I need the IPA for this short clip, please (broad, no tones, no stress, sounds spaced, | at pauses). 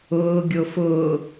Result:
ʊː ɡʲ o f ʊː